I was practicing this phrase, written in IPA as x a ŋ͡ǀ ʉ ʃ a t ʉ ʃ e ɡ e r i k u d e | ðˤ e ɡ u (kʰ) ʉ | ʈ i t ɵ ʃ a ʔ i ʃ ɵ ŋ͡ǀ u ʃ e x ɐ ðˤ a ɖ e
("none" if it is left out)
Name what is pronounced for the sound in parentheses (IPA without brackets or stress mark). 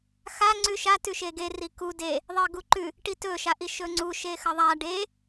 ǃ